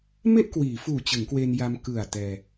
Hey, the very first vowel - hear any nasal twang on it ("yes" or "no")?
no